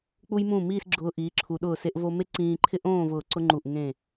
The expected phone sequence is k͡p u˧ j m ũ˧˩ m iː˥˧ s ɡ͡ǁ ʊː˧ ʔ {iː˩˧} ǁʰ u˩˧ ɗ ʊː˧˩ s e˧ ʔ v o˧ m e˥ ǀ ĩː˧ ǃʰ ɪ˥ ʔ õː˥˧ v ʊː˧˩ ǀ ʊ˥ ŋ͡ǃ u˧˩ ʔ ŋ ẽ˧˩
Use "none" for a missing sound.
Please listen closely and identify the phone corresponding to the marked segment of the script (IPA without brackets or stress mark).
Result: iː˩˧